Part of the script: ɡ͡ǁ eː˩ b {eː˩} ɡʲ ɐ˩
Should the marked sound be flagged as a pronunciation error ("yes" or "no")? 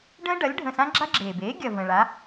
yes